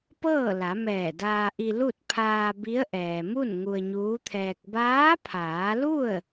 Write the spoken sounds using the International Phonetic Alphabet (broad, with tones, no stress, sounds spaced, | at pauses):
p ɤː˥˨ l a˩˧ m ɛː˧˩ d aː˧ ʔ i˧ l u˥˨ t̚ pʰ aː˧ b i˧˥ ə̯ ʔ ɛː˩ m u˥˨ n ŋ u˧ ə̯ ɲ uː˧˥ t̪ʰ ɛː˧ k̚ b aː˧˥ pʰ aː˩˧ l u˥˨ ə̯